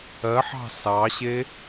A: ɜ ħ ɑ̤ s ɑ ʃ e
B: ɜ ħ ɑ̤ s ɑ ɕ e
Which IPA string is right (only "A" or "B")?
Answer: B